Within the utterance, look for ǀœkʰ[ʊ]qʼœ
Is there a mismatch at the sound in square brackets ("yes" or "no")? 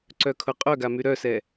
no